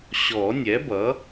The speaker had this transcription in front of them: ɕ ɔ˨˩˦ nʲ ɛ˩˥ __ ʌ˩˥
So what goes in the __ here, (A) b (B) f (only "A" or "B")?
A